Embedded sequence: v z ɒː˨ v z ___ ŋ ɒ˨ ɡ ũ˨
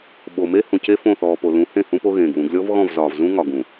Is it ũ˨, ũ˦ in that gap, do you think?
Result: ũ˦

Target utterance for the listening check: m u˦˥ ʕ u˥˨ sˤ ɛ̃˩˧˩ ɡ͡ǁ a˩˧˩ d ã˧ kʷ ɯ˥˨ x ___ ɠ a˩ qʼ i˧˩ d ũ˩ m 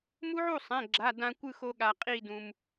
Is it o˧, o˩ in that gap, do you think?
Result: o˧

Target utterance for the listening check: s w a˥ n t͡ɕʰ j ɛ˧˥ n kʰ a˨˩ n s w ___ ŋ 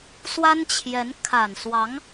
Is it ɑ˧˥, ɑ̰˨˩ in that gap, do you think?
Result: ɑ˧˥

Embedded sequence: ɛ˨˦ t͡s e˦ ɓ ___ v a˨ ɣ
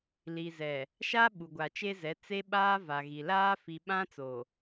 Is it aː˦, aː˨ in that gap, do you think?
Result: aː˦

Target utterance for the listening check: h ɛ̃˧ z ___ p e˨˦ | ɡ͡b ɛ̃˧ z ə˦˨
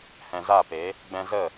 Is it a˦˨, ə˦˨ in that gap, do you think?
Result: a˦˨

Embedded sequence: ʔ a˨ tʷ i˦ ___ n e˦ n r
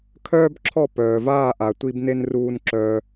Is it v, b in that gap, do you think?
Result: b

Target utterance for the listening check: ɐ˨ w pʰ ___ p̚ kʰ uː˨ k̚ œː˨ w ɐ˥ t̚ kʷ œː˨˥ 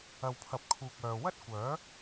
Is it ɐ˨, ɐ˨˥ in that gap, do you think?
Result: ɐ˨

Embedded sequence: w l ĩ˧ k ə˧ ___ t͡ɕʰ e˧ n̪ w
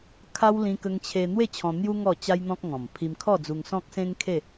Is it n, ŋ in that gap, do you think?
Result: ŋ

